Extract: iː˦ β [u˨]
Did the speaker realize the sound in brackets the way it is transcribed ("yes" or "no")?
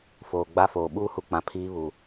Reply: yes